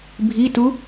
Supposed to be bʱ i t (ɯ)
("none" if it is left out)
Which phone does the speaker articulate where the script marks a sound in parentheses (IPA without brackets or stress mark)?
u